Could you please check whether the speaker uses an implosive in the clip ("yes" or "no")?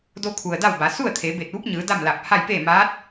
no